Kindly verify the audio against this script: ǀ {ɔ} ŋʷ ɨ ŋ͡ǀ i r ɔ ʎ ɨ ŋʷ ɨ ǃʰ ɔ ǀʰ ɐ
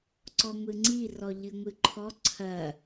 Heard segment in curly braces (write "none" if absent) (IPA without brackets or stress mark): ɔ